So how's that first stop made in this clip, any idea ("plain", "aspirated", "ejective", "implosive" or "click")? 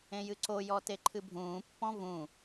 click